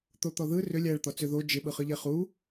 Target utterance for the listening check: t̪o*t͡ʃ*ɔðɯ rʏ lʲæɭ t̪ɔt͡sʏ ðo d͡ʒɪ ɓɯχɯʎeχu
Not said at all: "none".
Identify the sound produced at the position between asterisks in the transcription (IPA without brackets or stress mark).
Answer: t̪